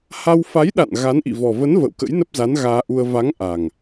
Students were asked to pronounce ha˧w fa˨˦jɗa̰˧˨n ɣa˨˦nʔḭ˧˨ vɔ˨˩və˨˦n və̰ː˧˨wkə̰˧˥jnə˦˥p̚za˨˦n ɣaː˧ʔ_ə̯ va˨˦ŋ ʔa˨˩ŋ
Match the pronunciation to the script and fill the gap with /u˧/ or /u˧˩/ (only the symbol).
u˧